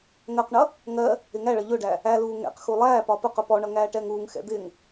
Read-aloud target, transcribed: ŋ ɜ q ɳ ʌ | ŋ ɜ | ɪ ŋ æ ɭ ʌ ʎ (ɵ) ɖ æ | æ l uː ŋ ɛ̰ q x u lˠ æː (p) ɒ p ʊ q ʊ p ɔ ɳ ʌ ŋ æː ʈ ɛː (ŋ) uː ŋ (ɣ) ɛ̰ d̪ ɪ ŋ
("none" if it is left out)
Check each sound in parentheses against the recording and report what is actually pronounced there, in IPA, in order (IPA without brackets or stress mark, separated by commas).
ʊ, p, ŋ, x